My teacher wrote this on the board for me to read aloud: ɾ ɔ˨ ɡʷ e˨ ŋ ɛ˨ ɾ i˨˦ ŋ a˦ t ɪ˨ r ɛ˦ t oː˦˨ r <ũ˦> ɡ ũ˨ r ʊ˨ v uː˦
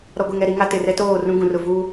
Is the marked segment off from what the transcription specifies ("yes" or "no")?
no